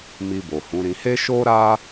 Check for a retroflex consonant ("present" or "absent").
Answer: absent